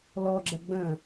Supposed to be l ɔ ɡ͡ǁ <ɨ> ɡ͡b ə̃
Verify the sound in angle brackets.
incorrect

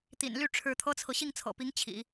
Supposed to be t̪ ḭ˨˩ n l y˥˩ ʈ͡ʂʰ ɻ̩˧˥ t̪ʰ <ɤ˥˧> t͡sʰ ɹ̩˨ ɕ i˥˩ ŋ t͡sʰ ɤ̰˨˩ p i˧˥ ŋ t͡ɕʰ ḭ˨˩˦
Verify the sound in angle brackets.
incorrect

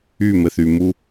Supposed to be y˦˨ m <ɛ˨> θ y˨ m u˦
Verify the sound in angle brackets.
incorrect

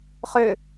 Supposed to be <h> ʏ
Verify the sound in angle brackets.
incorrect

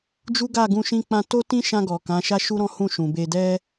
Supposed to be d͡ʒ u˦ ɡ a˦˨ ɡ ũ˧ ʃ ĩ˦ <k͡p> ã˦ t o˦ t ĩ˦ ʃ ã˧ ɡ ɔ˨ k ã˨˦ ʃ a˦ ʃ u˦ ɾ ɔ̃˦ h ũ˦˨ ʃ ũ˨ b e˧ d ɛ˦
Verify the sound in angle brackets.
correct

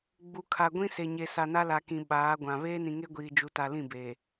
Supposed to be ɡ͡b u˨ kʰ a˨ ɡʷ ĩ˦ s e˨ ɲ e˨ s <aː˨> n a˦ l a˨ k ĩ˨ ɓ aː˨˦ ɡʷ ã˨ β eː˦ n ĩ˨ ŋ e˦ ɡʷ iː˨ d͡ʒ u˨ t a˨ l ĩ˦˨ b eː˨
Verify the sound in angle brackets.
incorrect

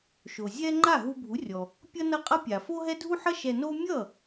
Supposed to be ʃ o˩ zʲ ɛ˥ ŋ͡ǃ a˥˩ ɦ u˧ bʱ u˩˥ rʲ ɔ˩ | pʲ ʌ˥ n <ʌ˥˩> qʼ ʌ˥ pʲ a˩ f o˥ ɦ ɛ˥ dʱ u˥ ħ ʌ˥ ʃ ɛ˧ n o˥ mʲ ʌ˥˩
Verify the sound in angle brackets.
correct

